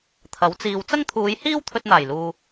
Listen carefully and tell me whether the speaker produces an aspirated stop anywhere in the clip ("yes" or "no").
yes